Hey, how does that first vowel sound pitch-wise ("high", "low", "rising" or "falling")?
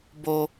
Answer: high